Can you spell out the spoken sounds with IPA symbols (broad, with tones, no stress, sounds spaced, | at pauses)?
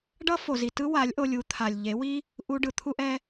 ɖ ʌ˦ f o˨ z i˨ t ɯ˦ w a˨˦ lʲ ʔ o˧ lʲ u˨˦ t̪ʰ a˨ lʲ ʎ e˨˦ w i˦ | ʔ u˧ ɖ ɯ˧ t̪ʰ u˦ ʔ ɛ˦